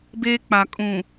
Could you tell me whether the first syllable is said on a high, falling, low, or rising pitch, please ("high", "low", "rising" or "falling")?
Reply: high